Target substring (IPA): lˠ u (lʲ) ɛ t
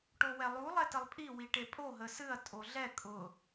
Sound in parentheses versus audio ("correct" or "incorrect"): incorrect